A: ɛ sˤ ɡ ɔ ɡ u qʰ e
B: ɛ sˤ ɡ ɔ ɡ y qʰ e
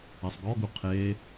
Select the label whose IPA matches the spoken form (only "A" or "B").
A